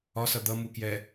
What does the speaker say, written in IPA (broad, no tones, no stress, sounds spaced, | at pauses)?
ɒ s ʌ d̪ ʌ m u k j ɛ